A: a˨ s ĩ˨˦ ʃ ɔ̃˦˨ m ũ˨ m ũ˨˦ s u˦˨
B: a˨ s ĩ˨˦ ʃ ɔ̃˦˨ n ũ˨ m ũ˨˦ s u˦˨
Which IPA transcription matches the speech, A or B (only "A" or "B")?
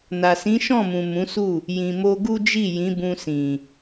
A